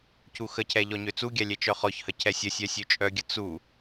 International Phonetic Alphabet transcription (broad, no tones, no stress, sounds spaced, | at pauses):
c u x ə cʰ ɛ ʎ ɔ ɲ ø t͡s u ɡʲ a lʲ ɛ t͡ʃ œ χ ɔ ç h ə cʰ ɛ sʲ ə sʲ œ sʲ ø t͡ʃʼ œ ɡʲ ə t͡s u